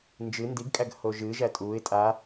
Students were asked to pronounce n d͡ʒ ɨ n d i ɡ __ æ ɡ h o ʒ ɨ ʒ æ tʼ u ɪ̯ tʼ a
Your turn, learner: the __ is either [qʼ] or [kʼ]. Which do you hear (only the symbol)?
kʼ